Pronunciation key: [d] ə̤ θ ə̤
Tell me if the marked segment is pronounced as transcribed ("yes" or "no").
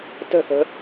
no